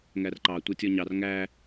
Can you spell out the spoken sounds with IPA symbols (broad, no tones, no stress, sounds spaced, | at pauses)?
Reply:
ŋ æ r ǃ ɑ tʷ ʌ tʲ ɔ ɲ ɑ r ŋ æ